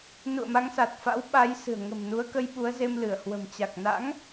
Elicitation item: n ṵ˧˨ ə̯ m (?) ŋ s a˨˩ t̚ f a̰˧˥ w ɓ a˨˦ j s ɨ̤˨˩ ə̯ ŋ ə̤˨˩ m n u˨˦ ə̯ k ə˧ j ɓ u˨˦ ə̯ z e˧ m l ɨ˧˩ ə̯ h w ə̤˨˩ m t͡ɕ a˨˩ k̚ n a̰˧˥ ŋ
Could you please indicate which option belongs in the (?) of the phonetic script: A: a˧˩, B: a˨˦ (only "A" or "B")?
B